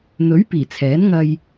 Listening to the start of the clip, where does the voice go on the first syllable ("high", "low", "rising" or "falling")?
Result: rising